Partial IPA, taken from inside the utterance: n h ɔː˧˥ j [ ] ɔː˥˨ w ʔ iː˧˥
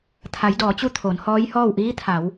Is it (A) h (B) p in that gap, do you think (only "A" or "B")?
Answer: A